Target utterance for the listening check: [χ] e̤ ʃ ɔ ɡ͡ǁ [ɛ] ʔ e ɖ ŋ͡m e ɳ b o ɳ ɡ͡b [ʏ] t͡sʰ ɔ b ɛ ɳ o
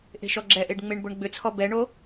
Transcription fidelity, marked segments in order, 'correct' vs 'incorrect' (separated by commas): incorrect, correct, correct